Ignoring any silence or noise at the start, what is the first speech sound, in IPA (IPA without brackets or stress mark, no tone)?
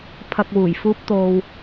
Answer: pʰ